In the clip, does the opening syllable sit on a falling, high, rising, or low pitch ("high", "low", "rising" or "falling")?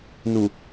low